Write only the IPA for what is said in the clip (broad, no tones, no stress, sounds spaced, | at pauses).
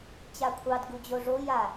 t͡ɕ a kʷʰ ɑ d ɡ u d͡ʑ o ʐ o j a